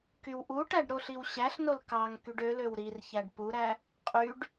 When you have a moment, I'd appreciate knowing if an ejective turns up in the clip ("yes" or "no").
yes